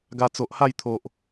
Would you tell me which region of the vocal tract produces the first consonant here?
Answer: velum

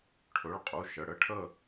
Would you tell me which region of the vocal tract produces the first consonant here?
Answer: retroflex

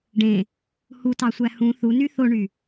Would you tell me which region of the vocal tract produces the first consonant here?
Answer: retroflex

